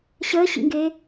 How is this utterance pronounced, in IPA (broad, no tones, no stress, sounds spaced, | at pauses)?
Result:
ɕ əː ɕ ḭ ŋ ɡ eː